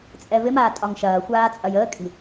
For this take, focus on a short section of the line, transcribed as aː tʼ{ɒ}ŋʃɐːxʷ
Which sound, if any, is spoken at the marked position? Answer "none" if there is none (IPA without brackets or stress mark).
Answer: ɒ